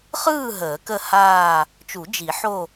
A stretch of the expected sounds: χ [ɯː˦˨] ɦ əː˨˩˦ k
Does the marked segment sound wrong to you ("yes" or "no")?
no